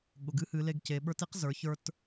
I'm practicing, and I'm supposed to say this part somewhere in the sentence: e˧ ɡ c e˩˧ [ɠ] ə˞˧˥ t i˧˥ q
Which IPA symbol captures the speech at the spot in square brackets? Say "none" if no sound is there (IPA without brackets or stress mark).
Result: ɓ